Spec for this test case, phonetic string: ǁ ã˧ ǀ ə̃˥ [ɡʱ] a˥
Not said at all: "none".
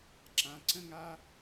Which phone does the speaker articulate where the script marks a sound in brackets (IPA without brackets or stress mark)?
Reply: ŋ